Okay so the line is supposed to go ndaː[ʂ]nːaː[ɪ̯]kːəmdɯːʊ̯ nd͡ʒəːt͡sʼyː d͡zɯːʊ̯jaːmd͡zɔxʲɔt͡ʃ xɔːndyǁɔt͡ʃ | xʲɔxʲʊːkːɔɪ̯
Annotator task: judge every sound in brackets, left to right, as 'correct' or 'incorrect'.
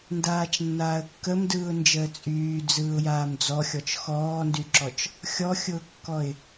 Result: incorrect: t͡ʃ, incorrect: ə̯

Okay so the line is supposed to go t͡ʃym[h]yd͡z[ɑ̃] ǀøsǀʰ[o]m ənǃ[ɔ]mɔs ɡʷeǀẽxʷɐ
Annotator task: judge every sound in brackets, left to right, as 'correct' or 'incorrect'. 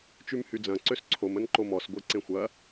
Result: correct, incorrect: ɐ̃, correct, incorrect: o

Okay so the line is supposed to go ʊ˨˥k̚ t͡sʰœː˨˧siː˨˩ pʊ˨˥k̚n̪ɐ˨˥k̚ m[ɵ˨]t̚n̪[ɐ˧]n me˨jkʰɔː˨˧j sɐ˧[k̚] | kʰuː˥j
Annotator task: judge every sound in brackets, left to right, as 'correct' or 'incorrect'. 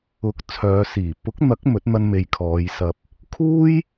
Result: incorrect: ɵ˨˥, correct, incorrect: p̚

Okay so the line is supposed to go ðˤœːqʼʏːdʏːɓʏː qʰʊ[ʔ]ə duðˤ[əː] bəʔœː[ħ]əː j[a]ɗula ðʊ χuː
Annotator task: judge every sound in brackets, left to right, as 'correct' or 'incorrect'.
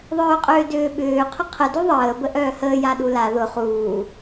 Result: incorrect: qʰ, correct, incorrect: h, correct

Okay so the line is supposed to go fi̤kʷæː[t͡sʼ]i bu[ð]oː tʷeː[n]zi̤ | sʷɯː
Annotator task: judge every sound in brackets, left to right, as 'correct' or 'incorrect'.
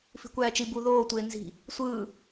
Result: incorrect: t͡ʃ, correct, correct

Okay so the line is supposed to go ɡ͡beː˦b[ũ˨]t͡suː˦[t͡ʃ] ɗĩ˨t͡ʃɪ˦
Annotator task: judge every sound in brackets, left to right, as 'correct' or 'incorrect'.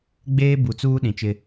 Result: incorrect: u˨, incorrect: none

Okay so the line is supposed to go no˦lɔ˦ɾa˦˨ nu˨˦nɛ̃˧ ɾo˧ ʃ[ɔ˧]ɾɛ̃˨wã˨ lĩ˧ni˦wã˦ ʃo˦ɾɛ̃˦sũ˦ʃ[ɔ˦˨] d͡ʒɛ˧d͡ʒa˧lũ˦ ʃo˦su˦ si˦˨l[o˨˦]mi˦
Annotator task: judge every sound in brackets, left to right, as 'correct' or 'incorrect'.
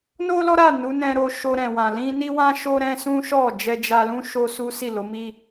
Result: incorrect: o˧, correct, correct

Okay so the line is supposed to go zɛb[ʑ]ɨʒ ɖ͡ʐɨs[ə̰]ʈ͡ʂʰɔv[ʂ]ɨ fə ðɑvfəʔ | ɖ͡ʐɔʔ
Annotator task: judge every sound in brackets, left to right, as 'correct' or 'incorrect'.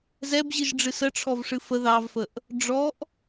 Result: correct, incorrect: ə, correct

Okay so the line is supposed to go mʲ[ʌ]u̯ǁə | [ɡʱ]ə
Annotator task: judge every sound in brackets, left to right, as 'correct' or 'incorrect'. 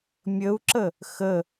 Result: incorrect: ə, incorrect: x

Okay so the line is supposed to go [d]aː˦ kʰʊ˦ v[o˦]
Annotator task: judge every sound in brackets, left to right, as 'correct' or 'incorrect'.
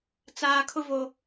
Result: incorrect: t͡s, correct

